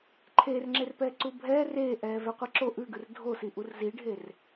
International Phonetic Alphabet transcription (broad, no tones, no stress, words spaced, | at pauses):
ǃʰeːrŋ͡ǁerpɛː ǀubʱɛː reːʔɛː vɛqʷiǁo ʔʉɡʉr dʱosi ʔurziɖʱer